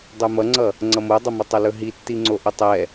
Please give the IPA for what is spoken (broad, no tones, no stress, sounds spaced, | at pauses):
dˤ ɵ m ʌ ŋ͡ǀ ʌ | ŋ͡ǀ ʌ m o dˤ ʌ m ɵ tˤ ʌ l ɵ ɦ i tː i ŋ͡ǀ o ʔ ɵ tˤ ɛ